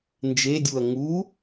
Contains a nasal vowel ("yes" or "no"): no